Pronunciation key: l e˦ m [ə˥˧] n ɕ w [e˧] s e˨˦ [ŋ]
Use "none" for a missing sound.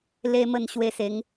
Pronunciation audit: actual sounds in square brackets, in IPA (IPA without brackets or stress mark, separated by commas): ə˥˧, e˧, ŋ